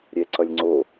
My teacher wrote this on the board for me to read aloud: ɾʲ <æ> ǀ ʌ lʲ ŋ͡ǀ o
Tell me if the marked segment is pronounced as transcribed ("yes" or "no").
no